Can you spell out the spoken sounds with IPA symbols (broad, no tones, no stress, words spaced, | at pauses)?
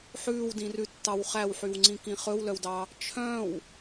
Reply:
ħʉːwdĩrʉtːɑw χæwħywŋ͡ǀĩ kĩχɵwlœwdɑ | t͡ʃʰœ̃w